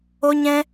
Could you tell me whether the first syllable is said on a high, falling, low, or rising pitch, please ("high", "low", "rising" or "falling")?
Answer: high